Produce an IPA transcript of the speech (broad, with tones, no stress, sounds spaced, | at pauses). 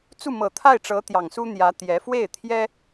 t͡s u˥˩ m ɤ˨˩ t̪ʰ a˥˩ ɪ̯ ʈ͡ʂ ɤ˧˥ t̪ j ɑ˨˩ ŋ s u˥ n̪ j ä˧˥ t̪ j ɛ˧˥ f w e˥˩ ɪ̯ t̪ʰ j ɛ˥